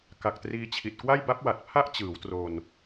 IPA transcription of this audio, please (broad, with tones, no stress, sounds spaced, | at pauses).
k a˨˩ k̚ t r iː˧ t͡ɕʰ i˨˩ t̚ k w a˥˩ j b a˦˥ p̚ w a˨˩ t̚ pʰ a˥˩ ʔ t͡ɕ ɯː˩˦ w t r o˧ n